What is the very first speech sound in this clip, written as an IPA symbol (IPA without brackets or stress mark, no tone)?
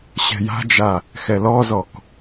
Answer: ɕ